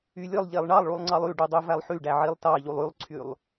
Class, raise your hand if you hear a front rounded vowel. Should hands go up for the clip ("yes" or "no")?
yes